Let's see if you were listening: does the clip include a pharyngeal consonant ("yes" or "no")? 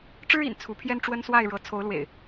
no